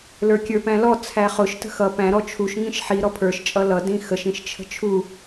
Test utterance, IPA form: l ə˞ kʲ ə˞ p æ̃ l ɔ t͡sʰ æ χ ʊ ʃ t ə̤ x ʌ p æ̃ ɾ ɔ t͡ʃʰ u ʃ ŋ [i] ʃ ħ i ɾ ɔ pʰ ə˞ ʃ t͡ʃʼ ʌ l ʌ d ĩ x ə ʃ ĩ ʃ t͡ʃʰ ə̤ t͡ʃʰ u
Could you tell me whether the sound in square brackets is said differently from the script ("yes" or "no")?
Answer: yes